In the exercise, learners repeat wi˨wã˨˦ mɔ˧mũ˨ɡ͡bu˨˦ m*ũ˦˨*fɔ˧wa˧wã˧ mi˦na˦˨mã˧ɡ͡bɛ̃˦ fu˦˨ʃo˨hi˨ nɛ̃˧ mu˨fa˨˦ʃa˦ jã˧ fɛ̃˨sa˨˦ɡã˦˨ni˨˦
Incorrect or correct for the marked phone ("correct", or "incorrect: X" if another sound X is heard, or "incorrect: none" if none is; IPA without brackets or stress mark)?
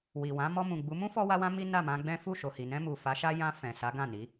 incorrect: ũ˦